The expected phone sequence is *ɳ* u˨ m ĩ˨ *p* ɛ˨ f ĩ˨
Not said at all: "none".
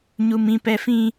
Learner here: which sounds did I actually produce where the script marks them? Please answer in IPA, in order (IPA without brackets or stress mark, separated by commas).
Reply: ɲ, p